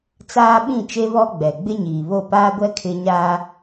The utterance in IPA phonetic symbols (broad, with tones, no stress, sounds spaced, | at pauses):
t͡s aː˦ ɓ ĩ˦˨ t͡ʃ e˦ β ɔ˦ ɡ͡b ɛ˨ ɡ͡b ɪ˦ ɲ iː˨ β o˦˨ p aː˦ ɡʷ ɛ˦ kʰ ɪ˦ ɲ aː˦